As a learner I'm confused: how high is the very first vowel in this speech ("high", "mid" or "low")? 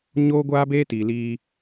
mid